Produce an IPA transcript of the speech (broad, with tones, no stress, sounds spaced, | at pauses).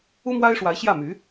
u˥ m w a˥ ɪ̯ ʂ w a˧˥ ɪ̯ ɕ j ä˥˩ m y˧˥